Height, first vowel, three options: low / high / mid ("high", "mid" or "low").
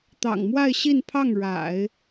low